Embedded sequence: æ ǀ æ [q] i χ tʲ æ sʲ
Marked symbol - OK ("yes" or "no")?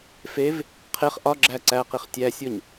yes